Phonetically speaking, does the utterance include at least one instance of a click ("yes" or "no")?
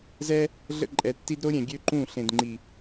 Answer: yes